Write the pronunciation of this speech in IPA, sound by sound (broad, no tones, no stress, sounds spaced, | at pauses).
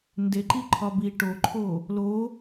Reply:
n d e ǃ i ǃʰ ɒ b i ʈ o ǃʰ o | l o